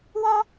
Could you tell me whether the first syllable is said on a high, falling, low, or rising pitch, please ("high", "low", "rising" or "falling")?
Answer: high